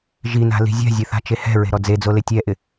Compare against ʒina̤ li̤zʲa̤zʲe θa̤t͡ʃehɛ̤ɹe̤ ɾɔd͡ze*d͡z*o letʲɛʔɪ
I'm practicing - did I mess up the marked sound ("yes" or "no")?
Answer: no